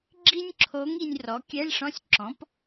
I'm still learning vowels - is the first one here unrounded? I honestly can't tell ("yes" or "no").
yes